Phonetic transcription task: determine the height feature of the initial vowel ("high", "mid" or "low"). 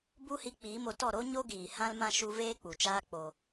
high